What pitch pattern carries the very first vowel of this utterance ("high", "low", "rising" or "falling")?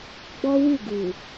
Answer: high